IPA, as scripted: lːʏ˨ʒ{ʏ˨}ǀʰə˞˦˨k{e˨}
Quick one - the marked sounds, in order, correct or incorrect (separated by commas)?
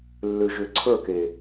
correct, correct